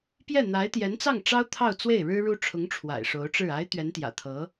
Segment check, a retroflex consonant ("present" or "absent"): present